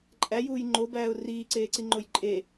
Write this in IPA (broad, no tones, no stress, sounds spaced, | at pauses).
ǃʼ æ j uː j ŋ͡ǃ o b æː ʊ̯ r iː ǀ eː ǀ i ŋ͡ǃ o j ǃʼ e